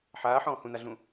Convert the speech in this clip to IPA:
ħ aː ħ ɔ̃ː h ũ n a ɮ ũ

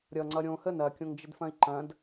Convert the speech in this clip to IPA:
ɾʲ ʌ ŋ͡ǀ ʌ ɾʲ õ h ə n ɐ kʲ õ ŋ d͡ʒ ə d f ɐ̃ i̯ ǃ ɐ̃ d

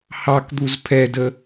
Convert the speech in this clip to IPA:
h ɑ k d̪ u z pʰ ɛ d ə

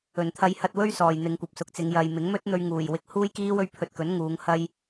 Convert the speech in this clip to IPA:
ɵ˨˩ n t̪ʰ ɐ˨˧ j h ɐ˨ t̚ w ɵ˧ ɥ s ɔː˨ j n̪ ɪ˨˧ ŋ kʷ ɐ˨ p̚ s ʊ˨ k̚ t͡s ɪ˨˧ ŋ j ɐ˨ j m ɪ˨˥ ŋ m ɵ˥ t̚ n̪ ɵ˧ ɥ ŋ uː˨˩ j w ɪ˨˥ k̚ h uː˥ j k iː˥ w ɵ˧ ɥ pʰ ɵ˧ t̚ k ɵ˨˥ n ŋ uː˨˧ ŋ h ɐ˧ j

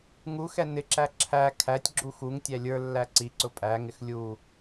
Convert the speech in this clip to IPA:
ŋ u x ɛ n ɪ ǁ æ ǁʰ æ kʰ æ tʲ ɡ͡ǁ u x u ŋ tʲ æ lʲ ə˞ lː æ ǀ i ǀ ʊ pʼ æ ŋ ɪ x lʲ u

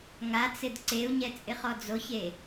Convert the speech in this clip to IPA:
ŋ a t͡s ɪ d ǀ e u̯ ɲ ɛ t͡sʼ ɪ χ ɔ d͡z o ç e

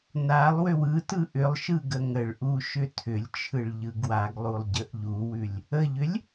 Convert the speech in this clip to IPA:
n a lˠ w ʏ w ɯ t ɯ ʔ ʏ lˠ ʃ ɯ ɡ ə ŋ ə ɭ ʔ u ʃ ʏ tʰ ʏ lʲ t͡ʃʰ ɯ ɭ ʎ ɯ ɡ w a ɡ lˠ u lˠ ɟ ə ʔ ʎ u w ʉ lʲ | ə ʎ ʏ lʲ

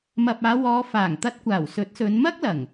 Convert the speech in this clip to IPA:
m ɐ˨ p̚ aː˨˧ w ɔː˨˧ f aː˨˩ ŋ t̪ ɐ˧ t̚ kʷ aː˨˩ w s ɵ˨˥ t̚ s ɵ˨˧ n m ɐ˥ k̚ l ɐ˨˩ ŋ

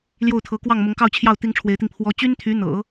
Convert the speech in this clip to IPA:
l j o˥˩ ʊ̯ t̪ʰ ɤ˧˥ k w ɑ˥˩ ŋ m ʊ˧˥ ŋ k ɑ˥˧ ʊ̯ t͡ɕʰ j ɑ˥˩ ʊ̯ t̪ i˥ ŋ ʈ͡ʂʰ w e˧˥ ɪ̯ t̪ i˧ ŋ pʰ w ɔ˧˥ t͡ɕ y˥ n t̪ʰ y˧˥ n̪ ɤ̰˨˩˦

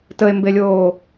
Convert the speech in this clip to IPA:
t ə e̯ m b e lʲ oː

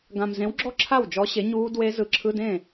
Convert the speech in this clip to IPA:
ɡ ã˨ m z ẽ˨˥ w ɡ͡ǁ ɔ˥˧ ǁʰ a˥˩ w d͡ʒ ɔ˨˥ ɕ e˨˥ ɲ uː˦˥ d w e˦˥ z ɯ˨˥ ǁʰ ɯ˧˥˧ d ẽ˥˩

